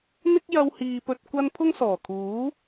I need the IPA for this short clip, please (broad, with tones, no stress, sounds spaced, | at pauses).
n̪ ɪ˥ k̚ j ɐ˧ w h iː˨ p ɵ˨ t̚ kʷ ɐ˧ n pʰ ʊ˥ ŋ s ɔː˨˩ kʰ uː˨˥